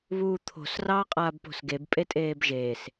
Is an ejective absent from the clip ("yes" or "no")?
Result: no